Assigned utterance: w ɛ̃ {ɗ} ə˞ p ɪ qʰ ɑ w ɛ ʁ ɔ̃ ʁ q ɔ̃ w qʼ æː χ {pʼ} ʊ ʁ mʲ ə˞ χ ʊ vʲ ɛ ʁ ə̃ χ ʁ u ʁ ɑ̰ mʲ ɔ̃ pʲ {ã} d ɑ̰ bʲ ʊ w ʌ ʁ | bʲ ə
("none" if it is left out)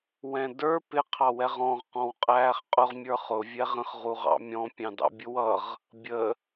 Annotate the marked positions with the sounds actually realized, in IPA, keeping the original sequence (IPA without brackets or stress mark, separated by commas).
d, qʼ, ɑ̃